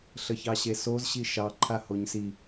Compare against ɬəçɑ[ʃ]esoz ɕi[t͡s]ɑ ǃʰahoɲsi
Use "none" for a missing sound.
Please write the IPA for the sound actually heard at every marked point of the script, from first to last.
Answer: ɕ, ʃ

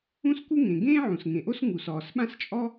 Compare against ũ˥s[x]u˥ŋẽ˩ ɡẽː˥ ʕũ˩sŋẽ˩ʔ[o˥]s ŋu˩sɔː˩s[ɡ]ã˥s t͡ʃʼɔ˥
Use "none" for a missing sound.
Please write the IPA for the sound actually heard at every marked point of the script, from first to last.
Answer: k, o˥, ɓ

